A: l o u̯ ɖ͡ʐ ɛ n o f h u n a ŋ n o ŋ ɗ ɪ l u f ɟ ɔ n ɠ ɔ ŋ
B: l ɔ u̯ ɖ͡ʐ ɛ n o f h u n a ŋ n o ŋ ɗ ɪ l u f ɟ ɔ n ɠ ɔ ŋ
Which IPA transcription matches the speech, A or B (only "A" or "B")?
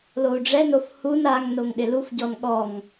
A